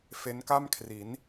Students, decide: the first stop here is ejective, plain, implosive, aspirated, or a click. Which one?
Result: plain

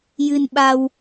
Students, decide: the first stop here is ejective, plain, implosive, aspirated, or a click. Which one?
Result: implosive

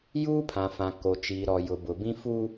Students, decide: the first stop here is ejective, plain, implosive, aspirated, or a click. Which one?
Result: aspirated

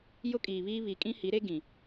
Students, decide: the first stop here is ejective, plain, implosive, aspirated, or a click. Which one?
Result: ejective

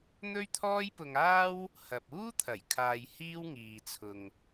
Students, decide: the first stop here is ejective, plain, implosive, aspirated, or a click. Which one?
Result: aspirated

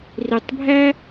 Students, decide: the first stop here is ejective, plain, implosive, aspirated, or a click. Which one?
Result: plain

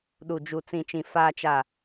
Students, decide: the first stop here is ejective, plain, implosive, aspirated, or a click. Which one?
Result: implosive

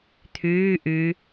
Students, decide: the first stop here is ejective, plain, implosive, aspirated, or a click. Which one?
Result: aspirated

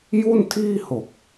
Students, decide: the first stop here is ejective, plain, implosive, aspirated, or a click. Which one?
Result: aspirated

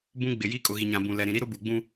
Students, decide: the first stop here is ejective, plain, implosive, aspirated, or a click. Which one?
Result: plain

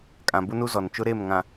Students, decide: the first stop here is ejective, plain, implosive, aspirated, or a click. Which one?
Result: ejective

